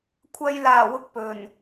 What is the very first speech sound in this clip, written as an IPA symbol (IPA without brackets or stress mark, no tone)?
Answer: kʷʰ